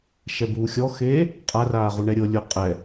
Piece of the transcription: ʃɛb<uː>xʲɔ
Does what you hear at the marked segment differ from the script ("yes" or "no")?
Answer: no